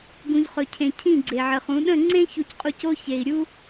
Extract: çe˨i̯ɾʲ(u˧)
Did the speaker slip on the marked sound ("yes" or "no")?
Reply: no